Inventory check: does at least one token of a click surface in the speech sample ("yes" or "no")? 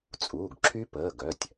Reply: yes